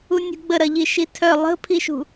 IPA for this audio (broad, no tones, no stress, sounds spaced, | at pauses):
u nʲ ṳ ɡ͡b ə ɾ ɐ ʎ i ʃ i tʰ œ lˠ ə̤ pʰ i ʃ ṳ